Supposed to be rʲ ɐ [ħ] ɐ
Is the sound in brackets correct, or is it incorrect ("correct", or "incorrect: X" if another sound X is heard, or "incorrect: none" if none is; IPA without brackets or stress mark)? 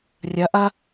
incorrect: ʔ